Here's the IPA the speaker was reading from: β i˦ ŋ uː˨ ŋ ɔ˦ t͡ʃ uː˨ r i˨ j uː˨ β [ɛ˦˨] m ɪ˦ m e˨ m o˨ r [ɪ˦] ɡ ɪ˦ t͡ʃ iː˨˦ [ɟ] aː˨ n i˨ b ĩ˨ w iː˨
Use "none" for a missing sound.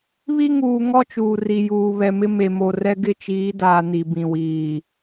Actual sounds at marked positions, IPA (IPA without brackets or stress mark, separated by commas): ɛ˨, ɛ˦, d